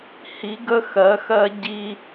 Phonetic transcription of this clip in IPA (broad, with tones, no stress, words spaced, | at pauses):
hi˨˦ ɡə˦xɜ˨˦xɜ˦ ɟi˦